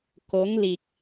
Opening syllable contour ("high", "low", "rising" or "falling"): rising